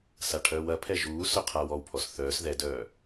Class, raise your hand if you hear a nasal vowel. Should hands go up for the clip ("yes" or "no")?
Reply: no